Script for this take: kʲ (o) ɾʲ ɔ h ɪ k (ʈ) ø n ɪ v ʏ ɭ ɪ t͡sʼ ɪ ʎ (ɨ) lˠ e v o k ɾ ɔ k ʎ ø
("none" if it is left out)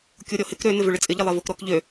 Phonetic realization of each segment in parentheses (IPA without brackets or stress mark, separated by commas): o, ɾ, ɪ